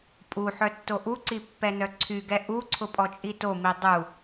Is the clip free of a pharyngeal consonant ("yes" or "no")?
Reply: no